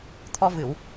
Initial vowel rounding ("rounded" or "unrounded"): rounded